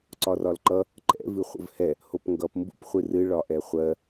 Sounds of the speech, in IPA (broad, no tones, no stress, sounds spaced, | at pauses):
ǀ ɒ r ɒ l ǃ ʌ | ǃ ɛ̰ v ɨ χʷ ə̰ v h ɛ | h o p ŋ ɡ ʌ p m b ṵ p χʷ ɨ r ɨ ɭ ɒ ʔ ɛ χʷ ɜ